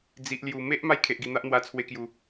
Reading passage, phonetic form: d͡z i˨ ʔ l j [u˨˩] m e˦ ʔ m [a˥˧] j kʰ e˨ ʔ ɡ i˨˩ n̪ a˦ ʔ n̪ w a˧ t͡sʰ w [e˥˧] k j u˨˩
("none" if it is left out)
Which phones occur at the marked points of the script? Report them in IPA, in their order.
u˨˩, a˥˧, e˧

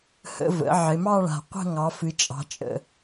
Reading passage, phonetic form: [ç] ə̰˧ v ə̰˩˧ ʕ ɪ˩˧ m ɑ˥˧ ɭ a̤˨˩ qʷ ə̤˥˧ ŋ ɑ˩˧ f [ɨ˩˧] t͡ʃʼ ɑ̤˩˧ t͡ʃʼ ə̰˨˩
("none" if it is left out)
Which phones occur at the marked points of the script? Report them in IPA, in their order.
h, ɨ˩˧

